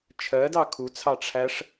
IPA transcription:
t͡ʃʰ ɜ d ɑ kʰ u t͡sʰ ɑ ʈ͡ʂʰ æ ʂ

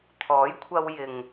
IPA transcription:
t̪ʰ ɔː˨˥ j kʷʰ ɐ˧ w j ɪ˨ ŋ

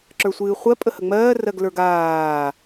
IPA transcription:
ǁ ə˞ sʷ ɨː χʷ ɜ pʼ ə h ə ŋ͡m ɜː r ɜ ɡ l ə˞ ɡ aː

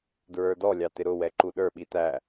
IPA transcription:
d ɹ ə˞ d ɔ lʲ ɑ t ɪ ɾ ʊ w ɛ ǃ u ɗ ə˞ ɓ i t æ

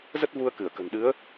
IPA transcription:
z ə˦˥ t̚ v u˧ ə̯ k ɨ˧˩ ə̯ k ə̤˨˩ n ɗ ɨ˨˦ ə̯

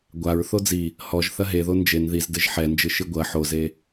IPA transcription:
ɡʷ a ɹ θ o d͡z i | h ɔ ʒ θ ɐ ɦ e ð o n d͡ʒ e n ð i z d ɘ ʒ ħ ɛ n d͡ʒ ɨ ʃ ɨ ɡʷ ɐ ħ o z e

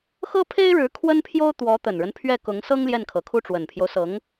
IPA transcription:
x ɤ˥ pʰ e˥ ɪ̯ ɻ ɻ̩˧˥ kʰ w ə˥ n pʰ j o˥ ʊ̯ t̪ w ɔ˧˥ t̪ ə˨˩ n ɻ ə˦ n pʰ ɥ ɛ˥˩ k ʊ˧˥ ŋ s ɤ˥ ŋ l j ɛ˥˩ n kʰ ɤ˨˩ kʰ u˥˩ ʈ͡ʂ w ə˨˩ n pʰ j o˦ ʊ̯ s ɤ˧˥ ŋ

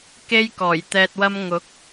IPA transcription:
k e˥ j k ɔː˨˩ j t̪ ɛː˧ t̚ w ɐ˥ m ŋ ʊ˨˥ k̚

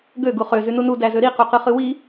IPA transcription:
ɡ ø ɡ u χ ø z y n u n u d æ z ø ɾ i q u q ɯ χ ɯ w i

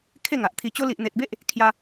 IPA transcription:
kʰ e˥˧ ŋ a˨ ʔ t̪ʰ i˧ t͡ɕ o˦ l i˨ ʔ n̪ e˨ t̚ b e˦ ʔ | kʰ j a˧

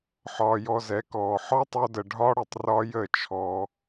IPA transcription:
ħ ɒː˧ j ɔ˧ z ɛ˨˦ k ɔː˨ ħ ɒ˦ tˤ o˧ d ə˨ ɖʱ ɒ˦ ɽ ə˨ tˤ r ɒ˧ j ə˦˨ t͡ʃʰ ɔ˧

